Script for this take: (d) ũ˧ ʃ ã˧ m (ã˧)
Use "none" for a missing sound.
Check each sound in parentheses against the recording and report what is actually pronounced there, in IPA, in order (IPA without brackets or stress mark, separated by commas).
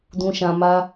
d, a˧